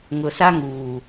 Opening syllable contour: low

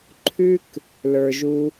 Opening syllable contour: high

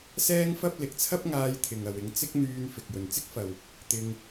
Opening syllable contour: high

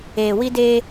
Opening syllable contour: low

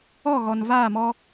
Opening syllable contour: falling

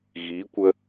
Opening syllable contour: rising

